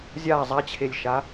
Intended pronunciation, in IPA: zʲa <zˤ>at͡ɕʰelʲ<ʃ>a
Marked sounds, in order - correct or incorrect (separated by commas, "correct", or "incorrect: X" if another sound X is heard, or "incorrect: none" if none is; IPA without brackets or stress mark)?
correct, correct